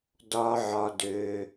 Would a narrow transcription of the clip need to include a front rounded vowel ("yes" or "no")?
yes